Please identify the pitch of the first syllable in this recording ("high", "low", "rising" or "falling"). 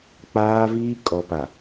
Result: high